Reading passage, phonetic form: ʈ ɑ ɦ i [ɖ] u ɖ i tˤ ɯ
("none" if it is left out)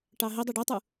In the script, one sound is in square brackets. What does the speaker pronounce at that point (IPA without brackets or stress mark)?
dˤ